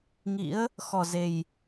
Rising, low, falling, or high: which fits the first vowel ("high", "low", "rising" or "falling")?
rising